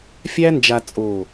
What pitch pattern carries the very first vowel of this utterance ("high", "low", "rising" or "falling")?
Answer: high